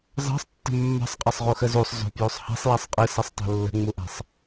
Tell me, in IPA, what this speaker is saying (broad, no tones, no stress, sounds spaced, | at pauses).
z ɑ̤ sˤ tː ə̤ mː ɑ̤ sˤ qʼ ɐ sˤ ʁ u x ə z u sˤ z o̤ p j u sˤ h a̤ sˤ j a sˤ qʼ ɨ s ɐ sˤ tˤ o̤ lː ə̤ ŋ͡m u ʔ a̤ sˤ